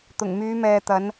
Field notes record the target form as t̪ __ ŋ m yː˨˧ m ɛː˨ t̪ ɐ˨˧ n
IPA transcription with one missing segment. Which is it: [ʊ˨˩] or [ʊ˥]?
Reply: ʊ˨˩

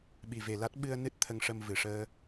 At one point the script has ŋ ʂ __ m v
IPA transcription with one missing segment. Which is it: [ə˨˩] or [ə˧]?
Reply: ə˧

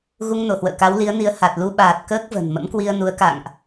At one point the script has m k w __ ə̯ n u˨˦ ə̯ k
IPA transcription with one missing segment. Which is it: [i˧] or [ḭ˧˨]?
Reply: i˧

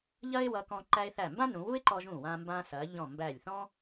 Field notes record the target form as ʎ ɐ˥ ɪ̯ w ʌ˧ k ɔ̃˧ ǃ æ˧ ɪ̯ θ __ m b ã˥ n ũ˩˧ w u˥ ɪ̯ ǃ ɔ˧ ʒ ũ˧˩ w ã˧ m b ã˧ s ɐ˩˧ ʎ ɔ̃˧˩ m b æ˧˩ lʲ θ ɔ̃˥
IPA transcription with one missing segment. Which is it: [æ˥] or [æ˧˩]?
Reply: æ˧˩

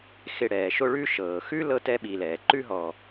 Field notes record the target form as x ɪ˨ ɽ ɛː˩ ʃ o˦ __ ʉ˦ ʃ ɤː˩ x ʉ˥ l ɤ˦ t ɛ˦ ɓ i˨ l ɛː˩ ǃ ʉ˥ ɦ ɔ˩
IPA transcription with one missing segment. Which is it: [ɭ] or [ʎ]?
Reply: ɭ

